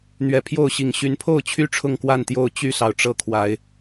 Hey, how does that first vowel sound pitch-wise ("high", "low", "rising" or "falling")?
rising